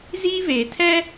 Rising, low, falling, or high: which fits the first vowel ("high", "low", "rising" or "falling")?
high